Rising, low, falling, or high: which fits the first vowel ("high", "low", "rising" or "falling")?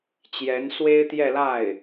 rising